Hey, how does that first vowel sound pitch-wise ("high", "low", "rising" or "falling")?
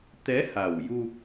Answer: rising